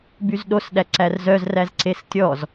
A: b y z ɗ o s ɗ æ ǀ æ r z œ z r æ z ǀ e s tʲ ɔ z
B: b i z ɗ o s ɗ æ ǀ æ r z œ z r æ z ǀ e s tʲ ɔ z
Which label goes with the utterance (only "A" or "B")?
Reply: A